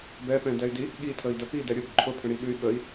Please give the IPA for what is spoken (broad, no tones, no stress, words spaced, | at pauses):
bɛpɛ̃dɛy̯di | ɠitʰəi̯də pidɛ ɾʲʊb ǃʰʊpʰə̃ɽiɠʉy̯ ɠəi̯